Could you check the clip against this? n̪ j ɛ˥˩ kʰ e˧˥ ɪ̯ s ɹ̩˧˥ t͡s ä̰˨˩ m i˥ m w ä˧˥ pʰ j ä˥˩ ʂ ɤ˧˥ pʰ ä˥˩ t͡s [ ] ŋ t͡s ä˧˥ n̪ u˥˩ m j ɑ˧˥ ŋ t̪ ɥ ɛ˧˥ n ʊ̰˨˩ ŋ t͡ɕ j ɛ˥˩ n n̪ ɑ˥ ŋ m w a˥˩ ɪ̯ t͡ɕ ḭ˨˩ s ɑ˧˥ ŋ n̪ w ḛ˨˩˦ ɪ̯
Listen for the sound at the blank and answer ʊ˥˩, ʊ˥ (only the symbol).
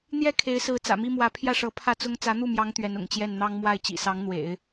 ʊ˥